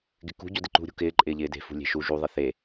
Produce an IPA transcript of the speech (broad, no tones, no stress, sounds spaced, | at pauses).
ɡ ɪ k ṳ ɟ o d ɪ ǃ ṳ ɾʲ ṳ k ɪː ǃʼ ɪː ʎ ɪː d e̤ f ṳ lʲ e̤ ʃ u ʒ u ðˤ ɪ θ e